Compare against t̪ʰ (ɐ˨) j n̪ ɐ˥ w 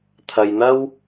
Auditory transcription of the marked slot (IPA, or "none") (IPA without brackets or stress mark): ɐ˨